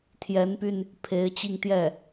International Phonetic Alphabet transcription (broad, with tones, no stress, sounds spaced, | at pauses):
t̪ʰ j ɛ˧˥ n p y˧ n | pʰ e˧˥ ɪ̯ t͡ɕ i˥˧ ŋ t̪ j ɛ˥˩